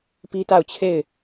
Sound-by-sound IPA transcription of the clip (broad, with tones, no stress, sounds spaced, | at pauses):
p i˦ t a˦˨ ʊ̯ t͡ɕʰ e˦˨ ɪ̯